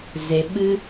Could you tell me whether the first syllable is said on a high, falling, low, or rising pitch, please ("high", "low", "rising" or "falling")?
low